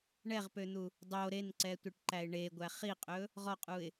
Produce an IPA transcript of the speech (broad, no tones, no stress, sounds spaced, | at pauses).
ɳ ɛ ʁ p ø n̪ u | dˤ o ɾ e n ǀ ɛ tʷ e ʈ ǃ æ ɪ̯ ɳ e ɡʷ æ χ i qʼ ɵ | ʁ ɔ qʼ u ɪ̯